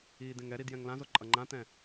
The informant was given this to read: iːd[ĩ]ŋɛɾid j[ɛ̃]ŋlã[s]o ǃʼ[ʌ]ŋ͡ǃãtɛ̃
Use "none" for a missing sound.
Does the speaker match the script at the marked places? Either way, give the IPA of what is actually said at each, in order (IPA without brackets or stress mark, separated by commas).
ẽ, ɛ̃, z, ʌ